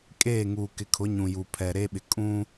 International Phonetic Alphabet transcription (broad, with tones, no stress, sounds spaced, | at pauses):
kʼ eː˦˨ ŋ uː˨ k ɪ˨ kʰ ʊ˨˦ ɲ ũ˨ j u˨ pʰ ɛ˨ ɾ e˦ ɓ ɪ˨ kʼ ũ˦